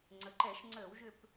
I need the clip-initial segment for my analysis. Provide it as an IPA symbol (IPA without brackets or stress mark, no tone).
ŋ͡ǀ